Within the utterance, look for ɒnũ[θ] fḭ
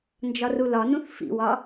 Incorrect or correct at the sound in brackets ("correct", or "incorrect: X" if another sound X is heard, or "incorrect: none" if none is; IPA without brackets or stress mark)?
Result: correct